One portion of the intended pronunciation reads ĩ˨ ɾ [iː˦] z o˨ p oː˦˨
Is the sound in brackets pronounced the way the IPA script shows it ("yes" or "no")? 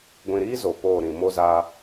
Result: yes